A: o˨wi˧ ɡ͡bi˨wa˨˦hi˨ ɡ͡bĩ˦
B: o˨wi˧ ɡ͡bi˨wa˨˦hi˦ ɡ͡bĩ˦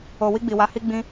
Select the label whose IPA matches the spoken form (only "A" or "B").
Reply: B